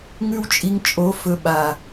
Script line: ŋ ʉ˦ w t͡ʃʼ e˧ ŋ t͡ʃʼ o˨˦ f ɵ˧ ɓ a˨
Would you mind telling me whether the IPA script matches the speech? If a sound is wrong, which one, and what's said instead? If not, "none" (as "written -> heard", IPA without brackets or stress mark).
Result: e˧ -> i˧